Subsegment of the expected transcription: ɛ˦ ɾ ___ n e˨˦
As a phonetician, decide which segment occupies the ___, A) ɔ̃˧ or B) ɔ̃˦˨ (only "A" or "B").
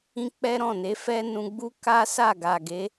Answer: B